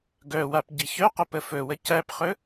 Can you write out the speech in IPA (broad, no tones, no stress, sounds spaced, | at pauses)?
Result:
ɡ œ w a p ɟ i ç œ q ə p ə f ɵ w ə c æ p χ ɵ